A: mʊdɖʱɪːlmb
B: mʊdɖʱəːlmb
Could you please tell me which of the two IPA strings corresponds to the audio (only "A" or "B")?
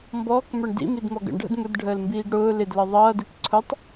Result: B